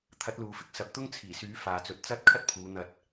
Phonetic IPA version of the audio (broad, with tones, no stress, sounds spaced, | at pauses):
t̪ʰ ɐ˨˥ t̚ l uː˨ f ɪ˥ k̚ s ɐ˨˥ p̚ t̪ ʊ˥ ŋ t͡sʰ iː˨˩ s yː˨˥ f aː˨ t͡s ɵ˨˥ t̚ t͡s ɐ˥ t̚ kʰ ɐ˥ t̚ pʰ uː˨˧ n̪ ɐ˧ t̚